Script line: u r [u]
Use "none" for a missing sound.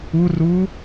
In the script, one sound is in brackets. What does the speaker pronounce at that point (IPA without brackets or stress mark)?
u